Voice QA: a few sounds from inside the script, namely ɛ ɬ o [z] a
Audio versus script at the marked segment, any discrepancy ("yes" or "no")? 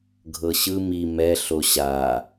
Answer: yes